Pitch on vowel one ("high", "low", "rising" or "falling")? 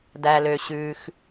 low